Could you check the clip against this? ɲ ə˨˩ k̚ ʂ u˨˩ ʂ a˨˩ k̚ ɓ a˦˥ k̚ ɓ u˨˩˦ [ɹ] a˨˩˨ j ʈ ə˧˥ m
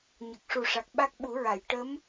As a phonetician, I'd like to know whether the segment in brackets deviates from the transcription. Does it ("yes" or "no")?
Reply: no